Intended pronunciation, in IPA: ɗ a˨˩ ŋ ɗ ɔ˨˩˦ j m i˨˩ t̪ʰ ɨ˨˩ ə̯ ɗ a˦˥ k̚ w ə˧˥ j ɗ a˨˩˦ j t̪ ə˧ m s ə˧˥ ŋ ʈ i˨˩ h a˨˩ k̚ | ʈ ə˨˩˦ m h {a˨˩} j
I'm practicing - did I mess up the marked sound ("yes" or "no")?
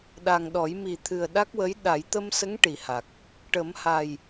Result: no